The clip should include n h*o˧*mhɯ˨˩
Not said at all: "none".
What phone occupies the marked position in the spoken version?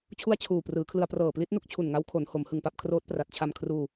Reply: o˩˦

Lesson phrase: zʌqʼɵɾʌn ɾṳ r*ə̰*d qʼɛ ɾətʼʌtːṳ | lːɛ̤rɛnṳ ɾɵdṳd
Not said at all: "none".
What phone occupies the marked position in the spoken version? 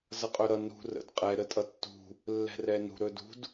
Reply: ə̰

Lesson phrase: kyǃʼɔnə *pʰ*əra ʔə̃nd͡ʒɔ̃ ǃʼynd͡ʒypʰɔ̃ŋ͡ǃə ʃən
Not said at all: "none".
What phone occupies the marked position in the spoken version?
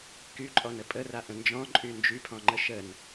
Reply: pʼ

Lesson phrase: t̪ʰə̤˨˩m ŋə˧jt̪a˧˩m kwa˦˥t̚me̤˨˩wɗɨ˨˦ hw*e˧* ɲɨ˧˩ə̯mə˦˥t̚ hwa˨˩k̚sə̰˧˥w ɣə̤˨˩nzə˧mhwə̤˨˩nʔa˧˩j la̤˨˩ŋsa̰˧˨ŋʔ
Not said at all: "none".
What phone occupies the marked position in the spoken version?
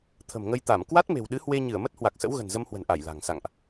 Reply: e˧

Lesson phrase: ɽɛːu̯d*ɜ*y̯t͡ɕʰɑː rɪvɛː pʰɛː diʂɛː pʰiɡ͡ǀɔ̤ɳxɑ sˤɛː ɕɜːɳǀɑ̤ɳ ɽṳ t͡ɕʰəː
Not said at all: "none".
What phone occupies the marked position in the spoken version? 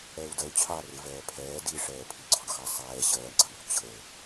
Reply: ɜ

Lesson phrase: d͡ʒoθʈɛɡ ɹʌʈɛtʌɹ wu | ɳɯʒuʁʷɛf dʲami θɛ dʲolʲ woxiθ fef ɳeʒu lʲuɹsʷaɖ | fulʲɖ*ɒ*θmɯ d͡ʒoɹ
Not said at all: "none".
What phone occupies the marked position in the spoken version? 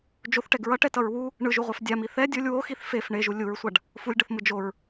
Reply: ʌ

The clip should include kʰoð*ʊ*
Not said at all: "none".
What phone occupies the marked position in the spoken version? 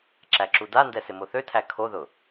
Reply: ʊ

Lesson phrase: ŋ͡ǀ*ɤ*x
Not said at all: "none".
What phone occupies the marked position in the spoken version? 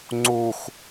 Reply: o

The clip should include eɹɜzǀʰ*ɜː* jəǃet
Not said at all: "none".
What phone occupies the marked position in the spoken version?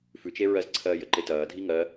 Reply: ɜː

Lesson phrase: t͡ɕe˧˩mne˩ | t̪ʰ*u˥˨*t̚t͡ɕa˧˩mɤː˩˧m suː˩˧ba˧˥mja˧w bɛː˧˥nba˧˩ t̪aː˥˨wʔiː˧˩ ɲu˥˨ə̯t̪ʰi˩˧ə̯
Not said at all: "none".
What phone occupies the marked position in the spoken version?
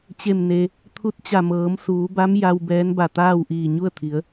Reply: u˧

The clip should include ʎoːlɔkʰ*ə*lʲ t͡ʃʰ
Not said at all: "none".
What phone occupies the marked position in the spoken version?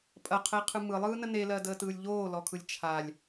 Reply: ɯ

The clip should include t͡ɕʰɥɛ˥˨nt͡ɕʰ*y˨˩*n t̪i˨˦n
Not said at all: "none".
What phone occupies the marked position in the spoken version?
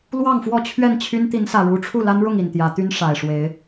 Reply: y˦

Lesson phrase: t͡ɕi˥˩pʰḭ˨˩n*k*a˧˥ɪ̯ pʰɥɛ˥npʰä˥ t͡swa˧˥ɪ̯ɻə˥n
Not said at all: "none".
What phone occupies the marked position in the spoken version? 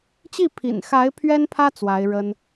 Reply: x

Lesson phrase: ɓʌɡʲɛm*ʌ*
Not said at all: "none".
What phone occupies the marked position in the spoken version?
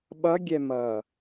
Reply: ʌː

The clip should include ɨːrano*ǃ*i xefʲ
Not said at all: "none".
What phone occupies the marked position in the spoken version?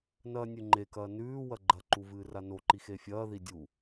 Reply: ǃ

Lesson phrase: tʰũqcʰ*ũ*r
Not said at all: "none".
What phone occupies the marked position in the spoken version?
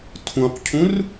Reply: ũ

